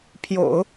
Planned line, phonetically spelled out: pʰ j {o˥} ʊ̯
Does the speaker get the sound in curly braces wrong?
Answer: yes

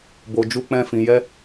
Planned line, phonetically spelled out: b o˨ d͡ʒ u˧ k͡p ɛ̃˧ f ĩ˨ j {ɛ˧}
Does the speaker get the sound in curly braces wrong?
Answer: no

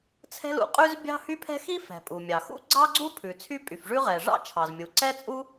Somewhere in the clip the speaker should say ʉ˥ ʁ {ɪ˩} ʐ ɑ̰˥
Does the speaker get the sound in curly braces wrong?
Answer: yes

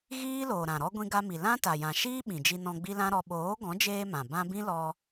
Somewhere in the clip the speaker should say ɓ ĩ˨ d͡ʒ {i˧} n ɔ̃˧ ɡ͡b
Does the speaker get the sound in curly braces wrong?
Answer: no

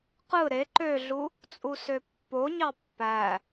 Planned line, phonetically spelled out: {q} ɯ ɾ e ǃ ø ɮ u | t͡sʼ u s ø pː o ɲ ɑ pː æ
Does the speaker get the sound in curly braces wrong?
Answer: no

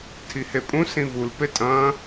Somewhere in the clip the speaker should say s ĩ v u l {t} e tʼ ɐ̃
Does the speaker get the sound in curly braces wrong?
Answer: yes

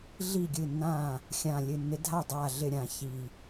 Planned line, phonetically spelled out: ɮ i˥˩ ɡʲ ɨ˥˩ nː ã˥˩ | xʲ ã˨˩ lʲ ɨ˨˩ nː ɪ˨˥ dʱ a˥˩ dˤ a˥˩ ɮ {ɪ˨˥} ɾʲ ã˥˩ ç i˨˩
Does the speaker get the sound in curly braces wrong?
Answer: yes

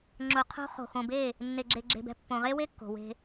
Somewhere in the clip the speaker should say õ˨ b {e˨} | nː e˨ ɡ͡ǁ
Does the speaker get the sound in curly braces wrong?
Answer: yes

